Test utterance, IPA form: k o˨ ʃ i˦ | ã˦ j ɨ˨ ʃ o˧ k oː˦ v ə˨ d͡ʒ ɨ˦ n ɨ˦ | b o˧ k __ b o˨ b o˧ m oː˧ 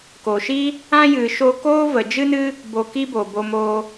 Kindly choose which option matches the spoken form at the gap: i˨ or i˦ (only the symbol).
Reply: i˦